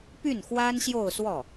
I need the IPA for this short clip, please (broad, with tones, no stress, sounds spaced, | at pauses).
p y˥˩ n x w a˥ n ɕ j o˥˧ ʊ̯ s w ɔ˥˩